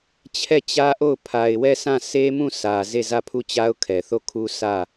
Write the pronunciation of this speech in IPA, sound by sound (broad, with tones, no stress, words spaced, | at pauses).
t͡ɕʰɛ˦˨t͡ɕä˦ʔo˦˨ʊ̯ pʰa˨ɪ̯wɛ˦˨sã˦˨ se˦mũ˦˨ sä˨ ze˦˨zä˦˨pʰu˦˨t͡ɕa˦ʊ̯ kʰɛ˨θo˦˨kʰu˦ sä˦˨